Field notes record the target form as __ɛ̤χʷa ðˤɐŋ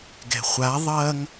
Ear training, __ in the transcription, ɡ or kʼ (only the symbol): ɡ